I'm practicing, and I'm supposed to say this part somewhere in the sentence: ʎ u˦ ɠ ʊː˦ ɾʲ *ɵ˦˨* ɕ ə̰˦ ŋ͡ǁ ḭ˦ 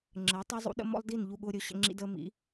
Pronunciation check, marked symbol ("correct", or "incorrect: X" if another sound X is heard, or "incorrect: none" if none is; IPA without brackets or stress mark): correct